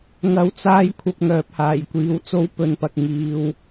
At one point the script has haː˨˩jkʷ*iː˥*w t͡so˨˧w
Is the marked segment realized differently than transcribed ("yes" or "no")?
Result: yes